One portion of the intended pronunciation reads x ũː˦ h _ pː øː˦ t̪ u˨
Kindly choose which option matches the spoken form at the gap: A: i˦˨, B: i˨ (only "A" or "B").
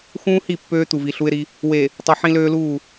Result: A